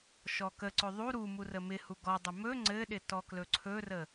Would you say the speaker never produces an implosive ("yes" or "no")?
no